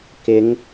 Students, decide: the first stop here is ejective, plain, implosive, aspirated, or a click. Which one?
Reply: plain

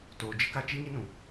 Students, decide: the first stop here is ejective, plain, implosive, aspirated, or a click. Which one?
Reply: plain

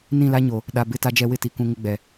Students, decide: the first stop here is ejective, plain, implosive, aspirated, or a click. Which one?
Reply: implosive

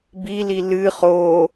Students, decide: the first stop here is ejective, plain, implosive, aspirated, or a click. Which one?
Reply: plain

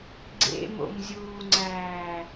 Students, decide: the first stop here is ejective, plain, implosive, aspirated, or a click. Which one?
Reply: click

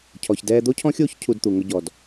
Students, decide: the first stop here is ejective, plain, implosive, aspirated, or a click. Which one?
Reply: aspirated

